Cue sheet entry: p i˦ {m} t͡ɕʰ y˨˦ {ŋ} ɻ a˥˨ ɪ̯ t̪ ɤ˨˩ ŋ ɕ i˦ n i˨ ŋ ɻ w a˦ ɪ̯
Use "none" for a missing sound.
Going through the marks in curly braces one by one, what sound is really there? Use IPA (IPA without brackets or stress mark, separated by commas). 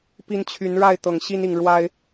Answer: n, n